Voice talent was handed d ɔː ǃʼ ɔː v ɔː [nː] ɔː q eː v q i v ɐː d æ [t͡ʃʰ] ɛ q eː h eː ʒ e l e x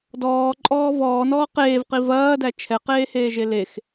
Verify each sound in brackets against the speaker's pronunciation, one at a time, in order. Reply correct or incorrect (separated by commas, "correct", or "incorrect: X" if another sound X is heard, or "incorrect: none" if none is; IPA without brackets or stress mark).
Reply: incorrect: n, correct